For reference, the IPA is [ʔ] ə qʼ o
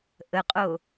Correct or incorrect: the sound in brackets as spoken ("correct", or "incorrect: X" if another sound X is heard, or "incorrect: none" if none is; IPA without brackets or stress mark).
correct